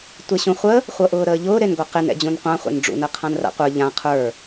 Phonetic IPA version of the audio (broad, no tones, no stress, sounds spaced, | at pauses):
tʷ e ɕ ũ χʷ ə | χʷ ɤ ʔ ʊː ɾ əː ʎ ʊː ɾ e n ɡʷ a q e n ɛ̰ d͡ʑ ũ n qʷ ã χʷ ɛ̰ n ɖ͡ʐ ṵ n ə qʰ ã n r a̰ qʷ ə˞ ʎ ã qʰ ə˞